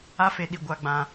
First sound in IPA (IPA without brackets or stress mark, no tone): a